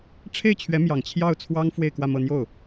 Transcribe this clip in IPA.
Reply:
ʈ͡ʂʰ e˥˩ ɪ̯ t͡ɕʰ ɥ ɛ˧˥ m j ɑ˨˩ ŋ t͡ɕʰ j ɑ˥˩ ʊ̯ t͡sʰ w ɑ˥ ŋ f w e˥˧ ɪ̯ k w ä˥˧ m ɤ˥˧ n̪ j o˥˩ ʊ̯

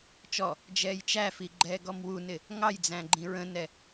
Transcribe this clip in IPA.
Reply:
t͡ʃ ɔ | d͡ʒ ɛː j t͡ʃ æ f i ɡ͡ǃ ɛː ɡ ɔ m w u n ɪ | ŋ ɑ j d͡z æ̃ ɡ͡ǃ ĩ ɹ ə̃ n ɛ

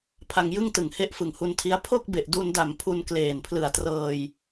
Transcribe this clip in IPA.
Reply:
pʰ a˧ ŋ j ɯ˥˩ ŋ t ɯ˨˩ ŋ h e˦˥ ʔ f ɯ˨˩ ŋ h u˧ n tʰ i˦˥ a̯ pʰ o˥˩ k̚ b e˨˩ ʔ d u˧ n d a˨˩ m pʰ u˧ n k l eː˨˩ n pʰ l ɯ˨˩ a̯ t r ɤː˧ j

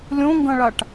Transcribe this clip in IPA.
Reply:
lʲ õ ŋ ɡ ɐ̃ ɭ a ʈ

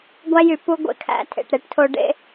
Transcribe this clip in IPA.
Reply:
ɡʷ æ˦ j y˨ p u˦ ɡʷ ḛ˨ kʰ æ̰˦ tʰ ḛ˨ ʈ ɾ e˦ ʈ tʰ o˦ ɖ ḛ˦

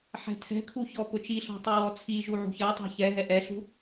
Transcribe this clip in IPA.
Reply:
ħ ɛ̤ tʰ ɛ̤ kʰ u ç ɔ p ʊ t͡ʃ i ɬ ɔ̤ tˤ u w ɔ t͡sʰ i ʒ u ʕ ṳ ç ɜ tˤ ɛ̤ ç ɛ ɦ ɛ ʔ ɛ ɬ ṳ

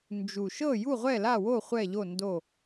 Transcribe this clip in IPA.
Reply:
n d͡ʒ u˨˩ ʃ ɤ˥˨ j u˥˨ ʁʷ ɛ˥˨ l a˥˨ w o˥˨ χʷ ɛ˥˨ ʎ o˥˨ n d o˥˨

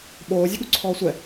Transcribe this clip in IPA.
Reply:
ɓ oː zʲ ə ɠ u ǀʰ ɔː sʷ ɛ

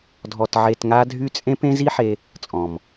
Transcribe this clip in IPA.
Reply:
dʱ ɔ˧ t ʕ e˧ t ŋ a˦ dʱ y˦ t͡sʼ ẽ˦ p ẽ˦ z i˦ ħ e˧ | t͡sʼ ɔ̃˨ m

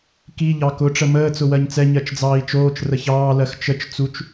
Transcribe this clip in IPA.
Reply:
k i ʎ ɑ k ʊ ʈ͡ʂ ə m əː t͡s ʊ w ɜ ɲ t͡s ɛ ɲ ɜ t͡ʃ d͡z ɑː i̯ t͡ʃ oː t͡ʃ r ə ç ɑː l ɜ x t͡ʃ ə t͡ʃ t͡s u t͡ʃ

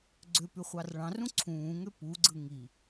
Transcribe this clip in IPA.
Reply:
ɡ͡ǀ ø p y χʷ ɑ r ɭ ɑ̃ r ũ ǀʰ ũː ŋ ø p u ɡ͡ǀ ɯ ŋ i

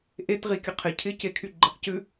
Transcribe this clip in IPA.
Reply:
ʔ e t ʁ i kʲ ə qʰ ɪ cʰ ɪ c e kʰ y ɡ͡ǃ ɪ q c ʉ

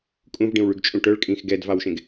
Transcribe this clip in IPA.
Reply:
kʼ ũ v ɖ ĩ w ɭ y ɡ t͡ʃʼ ũ ʈ œ ɭ kʼ ĩ x ɡ ɛ d v ɑ w ʃ ẽ ɡ

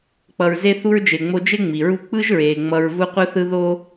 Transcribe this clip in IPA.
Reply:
k͡p ʌ˨ ɹ z e˦ θ u˥ ɹ d͡ʒ e˨ ŋ͡m o˦ d͡ʒ e˥ ŋ͡m i˩ ɹ u˦ k͡p ɯ˥ ʒ ɹ eː˩ ŋ͡m ʌ˨ ɹ v u˦ qʷ ɯ˦ θ ɯ˦ ð o˦

